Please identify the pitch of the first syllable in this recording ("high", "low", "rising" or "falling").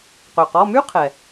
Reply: low